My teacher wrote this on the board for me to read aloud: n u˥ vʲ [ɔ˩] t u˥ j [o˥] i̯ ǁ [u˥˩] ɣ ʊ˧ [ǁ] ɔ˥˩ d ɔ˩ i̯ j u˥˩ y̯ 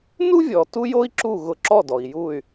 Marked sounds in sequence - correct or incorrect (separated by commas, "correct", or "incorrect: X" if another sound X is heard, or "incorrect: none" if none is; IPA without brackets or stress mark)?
correct, correct, correct, correct